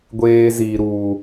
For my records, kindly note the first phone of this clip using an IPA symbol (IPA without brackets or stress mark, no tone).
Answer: ɡʷ